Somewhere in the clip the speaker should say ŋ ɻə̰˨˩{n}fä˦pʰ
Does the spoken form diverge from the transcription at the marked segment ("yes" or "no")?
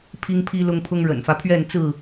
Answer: no